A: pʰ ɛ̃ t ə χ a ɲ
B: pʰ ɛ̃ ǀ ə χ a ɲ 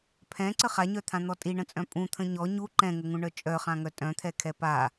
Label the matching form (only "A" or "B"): B